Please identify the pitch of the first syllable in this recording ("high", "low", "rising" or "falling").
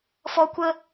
high